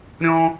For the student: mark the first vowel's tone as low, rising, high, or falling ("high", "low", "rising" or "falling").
high